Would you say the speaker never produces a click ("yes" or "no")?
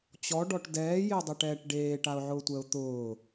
yes